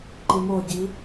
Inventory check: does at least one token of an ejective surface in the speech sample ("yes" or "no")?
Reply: no